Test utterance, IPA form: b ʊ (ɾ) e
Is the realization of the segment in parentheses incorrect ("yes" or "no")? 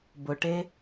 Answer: yes